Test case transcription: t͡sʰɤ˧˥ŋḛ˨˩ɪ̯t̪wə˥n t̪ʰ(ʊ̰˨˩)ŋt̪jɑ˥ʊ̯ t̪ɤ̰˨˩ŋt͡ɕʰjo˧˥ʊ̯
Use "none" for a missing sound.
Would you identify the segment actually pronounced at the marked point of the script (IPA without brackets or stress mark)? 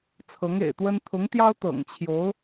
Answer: ʊ˧˥